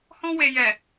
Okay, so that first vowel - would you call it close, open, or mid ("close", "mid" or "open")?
mid